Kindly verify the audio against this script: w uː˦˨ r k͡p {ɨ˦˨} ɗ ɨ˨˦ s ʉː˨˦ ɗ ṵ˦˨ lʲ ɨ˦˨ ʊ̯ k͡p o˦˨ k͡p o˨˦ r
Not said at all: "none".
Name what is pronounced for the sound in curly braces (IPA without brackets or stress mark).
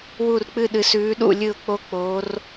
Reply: ɨ˦˨